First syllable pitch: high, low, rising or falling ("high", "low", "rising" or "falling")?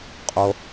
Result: low